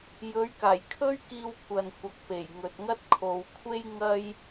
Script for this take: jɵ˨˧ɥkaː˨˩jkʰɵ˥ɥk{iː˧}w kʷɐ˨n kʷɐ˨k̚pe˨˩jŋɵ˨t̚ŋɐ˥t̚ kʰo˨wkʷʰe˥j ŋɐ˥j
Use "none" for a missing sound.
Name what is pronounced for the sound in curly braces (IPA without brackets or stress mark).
iː˧